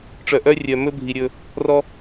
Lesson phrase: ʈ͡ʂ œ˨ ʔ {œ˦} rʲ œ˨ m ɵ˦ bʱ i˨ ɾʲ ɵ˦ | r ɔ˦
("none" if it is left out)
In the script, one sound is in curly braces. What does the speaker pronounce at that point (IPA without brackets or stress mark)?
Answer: œ˦